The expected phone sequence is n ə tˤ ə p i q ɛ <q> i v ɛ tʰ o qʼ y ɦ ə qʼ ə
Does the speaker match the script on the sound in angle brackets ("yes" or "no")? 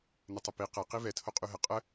yes